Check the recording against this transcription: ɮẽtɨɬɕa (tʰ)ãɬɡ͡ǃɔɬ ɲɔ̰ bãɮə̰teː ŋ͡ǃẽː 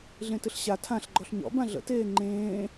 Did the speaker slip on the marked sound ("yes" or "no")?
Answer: no